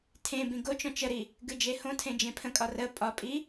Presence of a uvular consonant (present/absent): absent